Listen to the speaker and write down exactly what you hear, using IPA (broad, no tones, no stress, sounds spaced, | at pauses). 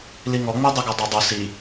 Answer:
l i ŋ ɔ ŋ͡m e dˤ u ɡ ɤ dˤ ɤ dˤ u s i